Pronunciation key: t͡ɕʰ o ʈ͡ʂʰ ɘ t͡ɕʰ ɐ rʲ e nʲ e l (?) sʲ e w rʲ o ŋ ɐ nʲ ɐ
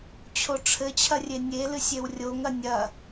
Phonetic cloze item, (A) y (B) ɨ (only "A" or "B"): B